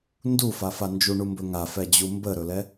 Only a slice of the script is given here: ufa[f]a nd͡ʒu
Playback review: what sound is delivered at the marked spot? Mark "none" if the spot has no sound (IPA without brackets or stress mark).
f